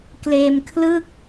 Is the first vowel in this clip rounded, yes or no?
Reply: no